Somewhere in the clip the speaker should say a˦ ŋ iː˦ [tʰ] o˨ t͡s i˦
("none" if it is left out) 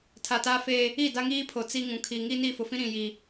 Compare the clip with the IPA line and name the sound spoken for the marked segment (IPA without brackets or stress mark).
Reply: pʰ